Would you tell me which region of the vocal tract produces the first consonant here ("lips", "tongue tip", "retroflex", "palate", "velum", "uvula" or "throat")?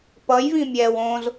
lips